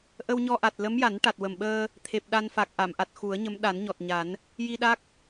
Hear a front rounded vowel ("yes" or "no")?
no